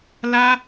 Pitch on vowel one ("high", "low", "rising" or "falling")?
high